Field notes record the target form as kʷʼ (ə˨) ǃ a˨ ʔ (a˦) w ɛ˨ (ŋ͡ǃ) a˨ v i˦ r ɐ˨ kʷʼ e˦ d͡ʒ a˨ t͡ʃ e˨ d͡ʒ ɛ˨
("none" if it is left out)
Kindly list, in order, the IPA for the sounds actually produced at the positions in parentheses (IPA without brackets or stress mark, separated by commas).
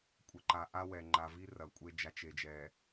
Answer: ə˨, a˦, ŋ͡ǃ